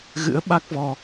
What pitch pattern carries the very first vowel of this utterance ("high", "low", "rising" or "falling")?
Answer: rising